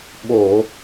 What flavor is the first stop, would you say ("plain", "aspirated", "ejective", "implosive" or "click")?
implosive